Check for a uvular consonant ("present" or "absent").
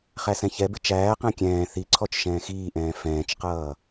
present